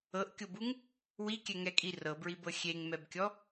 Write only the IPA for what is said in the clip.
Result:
ɤ ʔ kʲ o b u ŋ | w i kʲ ɛ ŋ ɛ kʼ i r ɤ b ɹ i b ɤ xʲ e ŋ m ɛ b kʲ ɔ

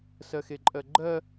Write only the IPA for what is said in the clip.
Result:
s ɜ x e ǃʼ ɜ ɡ͡ǃ ɜ

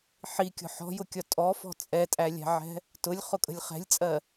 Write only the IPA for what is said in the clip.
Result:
ħ i kʲ ɔ̤ ħ ɔ̤ j ʊ kʲ ɒ tʼ ɔ f ɔ̤ t͡sʼ ɛ tʼ æ lʲ æ̤ ʕ ɛ̤ | t ʊ lʲ χ ʊ kʼ ə̤ lʲ χ ɛ̤ lʲ t͡sʼ ɜ

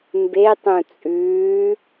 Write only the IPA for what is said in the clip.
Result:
m b e tˤ ũ t͡sʼ ʉː

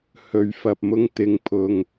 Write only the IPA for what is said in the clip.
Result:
h ɵ˨ ɥ f ɐ˨ p̚ m ʊ˧ ŋ t̪ ɪ˨ ŋ pʰ ʊ˨ ŋ

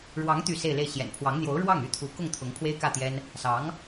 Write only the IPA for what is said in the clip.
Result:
ɻ w ɑ˧˥ ŋ t̪ y˥˧ s e˥˧ ɪ̯ l e˥˩ ɪ̯ ɕ j ɛ̰˨˩ n pʰ w ɑ˧˥ ŋ n̪ j o˧˥ ʊ̯ ɻ w ɑ˥˩ ŋ y˥ t̪ʰ u˧˥ k ʊ˥˩ ŋ t̪ʰ ʊ˧˥ ŋ pʰ w e˥ ɪ̯ k ä˥˩ t̪ j ɛ˥ n | s ɑ˧˥ ŋ

